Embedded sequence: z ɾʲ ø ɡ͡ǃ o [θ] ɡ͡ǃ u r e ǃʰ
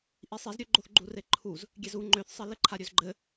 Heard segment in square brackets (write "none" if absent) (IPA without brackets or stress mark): θ